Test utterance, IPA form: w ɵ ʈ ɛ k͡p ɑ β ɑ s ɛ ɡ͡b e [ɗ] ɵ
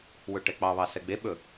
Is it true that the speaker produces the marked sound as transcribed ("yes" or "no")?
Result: no